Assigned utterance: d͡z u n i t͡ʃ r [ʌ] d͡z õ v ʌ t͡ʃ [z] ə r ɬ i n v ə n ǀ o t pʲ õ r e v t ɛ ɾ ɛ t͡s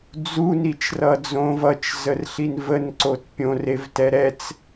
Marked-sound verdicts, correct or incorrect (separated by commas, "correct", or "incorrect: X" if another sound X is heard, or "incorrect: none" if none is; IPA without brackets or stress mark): correct, correct